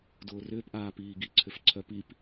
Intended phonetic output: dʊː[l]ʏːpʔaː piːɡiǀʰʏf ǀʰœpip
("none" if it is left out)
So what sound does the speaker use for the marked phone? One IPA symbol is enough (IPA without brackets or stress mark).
r